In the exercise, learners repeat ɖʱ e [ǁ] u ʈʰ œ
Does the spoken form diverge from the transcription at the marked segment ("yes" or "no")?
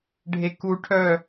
yes